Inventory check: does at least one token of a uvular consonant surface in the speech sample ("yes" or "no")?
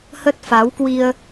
no